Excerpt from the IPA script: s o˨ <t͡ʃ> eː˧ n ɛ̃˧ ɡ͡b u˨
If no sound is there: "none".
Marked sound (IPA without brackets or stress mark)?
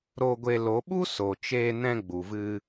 t͡ʃ